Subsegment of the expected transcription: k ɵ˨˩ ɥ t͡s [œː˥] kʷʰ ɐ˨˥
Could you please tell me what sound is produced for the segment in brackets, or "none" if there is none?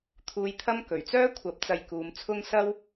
œː˥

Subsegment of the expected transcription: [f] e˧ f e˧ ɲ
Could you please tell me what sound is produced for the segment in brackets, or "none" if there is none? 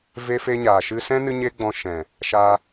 v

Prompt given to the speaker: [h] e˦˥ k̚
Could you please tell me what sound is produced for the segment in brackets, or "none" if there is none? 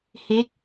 h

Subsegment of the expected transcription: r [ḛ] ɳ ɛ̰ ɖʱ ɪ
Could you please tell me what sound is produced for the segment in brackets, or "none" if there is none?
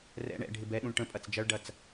ɛ̰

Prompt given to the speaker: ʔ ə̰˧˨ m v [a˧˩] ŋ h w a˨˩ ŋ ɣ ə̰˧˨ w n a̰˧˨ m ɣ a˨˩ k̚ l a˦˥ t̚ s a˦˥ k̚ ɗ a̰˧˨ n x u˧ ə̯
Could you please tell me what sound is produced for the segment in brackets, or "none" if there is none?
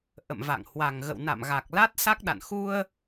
a̰˧˨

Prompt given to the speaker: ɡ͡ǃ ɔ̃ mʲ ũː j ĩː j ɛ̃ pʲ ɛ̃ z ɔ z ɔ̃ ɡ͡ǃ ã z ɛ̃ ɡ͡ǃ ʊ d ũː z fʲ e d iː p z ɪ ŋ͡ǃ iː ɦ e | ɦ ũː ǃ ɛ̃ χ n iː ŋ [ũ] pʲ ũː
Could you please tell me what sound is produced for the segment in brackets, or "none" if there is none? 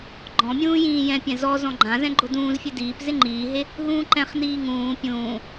ũː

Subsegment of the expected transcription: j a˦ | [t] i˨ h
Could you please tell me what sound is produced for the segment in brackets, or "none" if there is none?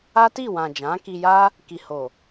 k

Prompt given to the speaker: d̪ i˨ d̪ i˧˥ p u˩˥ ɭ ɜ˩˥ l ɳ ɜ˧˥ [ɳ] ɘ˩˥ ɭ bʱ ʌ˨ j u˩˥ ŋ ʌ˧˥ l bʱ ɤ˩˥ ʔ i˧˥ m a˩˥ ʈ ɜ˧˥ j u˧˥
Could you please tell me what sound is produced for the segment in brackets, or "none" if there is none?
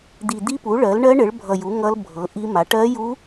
ɳ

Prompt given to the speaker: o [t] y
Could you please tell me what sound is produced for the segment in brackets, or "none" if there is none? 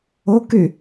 k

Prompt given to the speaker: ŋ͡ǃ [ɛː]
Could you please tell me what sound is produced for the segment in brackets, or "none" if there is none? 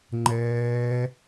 ɛː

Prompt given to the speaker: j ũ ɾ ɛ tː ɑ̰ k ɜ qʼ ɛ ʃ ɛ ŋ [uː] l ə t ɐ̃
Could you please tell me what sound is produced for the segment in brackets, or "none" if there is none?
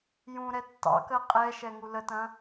u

